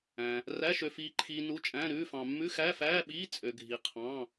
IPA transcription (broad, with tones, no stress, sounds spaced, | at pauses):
æ̃˧ | r æ˧˥˧ ʃ ø˧ f iː˧ ǃʰ iː˧ n u˧˥˧ t͡ʃʼ æ̃˧˥˧ ɾ ʉː˧˥˧ f ɑ̃˧ mː ʉ˧˥˧ x æ˧˥˧ f æː˧˥˧ ɓ iː˧˥˧ t͡sʼ ø˧ ɡʱ i˧ qʰ ɑ̃˧˥˧